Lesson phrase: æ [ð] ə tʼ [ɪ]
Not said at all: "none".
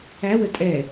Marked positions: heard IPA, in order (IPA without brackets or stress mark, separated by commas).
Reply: w, ɛ